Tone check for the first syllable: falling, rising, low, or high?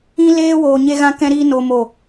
high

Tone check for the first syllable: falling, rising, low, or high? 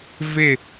falling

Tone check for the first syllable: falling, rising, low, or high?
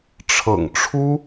low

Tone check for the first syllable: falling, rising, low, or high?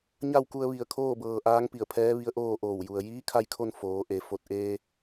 falling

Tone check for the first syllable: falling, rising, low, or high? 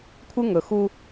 high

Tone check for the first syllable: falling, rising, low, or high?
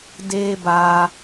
high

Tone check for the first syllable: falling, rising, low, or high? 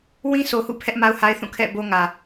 high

